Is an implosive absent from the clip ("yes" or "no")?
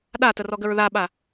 no